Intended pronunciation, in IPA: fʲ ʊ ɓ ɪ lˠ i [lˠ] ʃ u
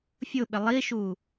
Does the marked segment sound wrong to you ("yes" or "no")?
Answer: yes